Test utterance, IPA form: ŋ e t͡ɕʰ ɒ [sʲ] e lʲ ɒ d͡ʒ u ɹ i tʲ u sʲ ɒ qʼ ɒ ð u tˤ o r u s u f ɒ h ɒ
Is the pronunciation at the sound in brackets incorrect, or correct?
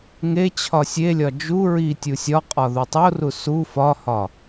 correct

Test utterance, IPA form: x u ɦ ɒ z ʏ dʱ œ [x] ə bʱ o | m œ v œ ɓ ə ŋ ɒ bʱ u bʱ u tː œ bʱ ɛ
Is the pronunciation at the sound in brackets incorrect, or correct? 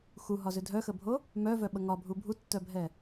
correct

